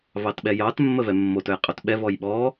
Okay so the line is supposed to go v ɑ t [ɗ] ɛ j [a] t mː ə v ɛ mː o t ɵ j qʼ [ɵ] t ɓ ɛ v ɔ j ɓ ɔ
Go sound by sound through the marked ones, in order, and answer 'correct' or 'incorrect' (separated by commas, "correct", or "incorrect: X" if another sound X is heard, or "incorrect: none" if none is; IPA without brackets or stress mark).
incorrect: ɓ, incorrect: ɑ, correct